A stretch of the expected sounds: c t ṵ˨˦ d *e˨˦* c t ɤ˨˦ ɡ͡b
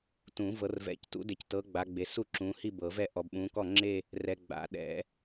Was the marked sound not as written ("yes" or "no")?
yes